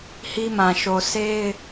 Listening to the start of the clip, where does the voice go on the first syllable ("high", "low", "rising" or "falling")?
high